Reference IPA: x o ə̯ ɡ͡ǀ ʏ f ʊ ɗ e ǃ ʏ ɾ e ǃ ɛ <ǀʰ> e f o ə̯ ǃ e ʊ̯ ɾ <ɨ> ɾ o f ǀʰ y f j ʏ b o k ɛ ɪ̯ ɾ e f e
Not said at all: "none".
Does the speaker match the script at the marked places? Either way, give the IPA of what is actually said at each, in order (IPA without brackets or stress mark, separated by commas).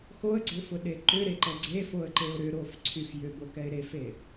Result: ɡ͡ǀ, ʏ